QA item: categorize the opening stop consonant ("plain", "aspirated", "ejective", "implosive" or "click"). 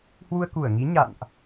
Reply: plain